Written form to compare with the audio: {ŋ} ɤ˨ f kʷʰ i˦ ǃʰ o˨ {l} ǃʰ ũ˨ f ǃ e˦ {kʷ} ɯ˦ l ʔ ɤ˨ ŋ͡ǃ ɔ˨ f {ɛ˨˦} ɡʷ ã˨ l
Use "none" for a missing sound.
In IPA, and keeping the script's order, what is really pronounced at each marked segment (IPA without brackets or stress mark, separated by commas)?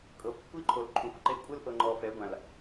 kʼ, l, kʷʼ, ɛ˨˦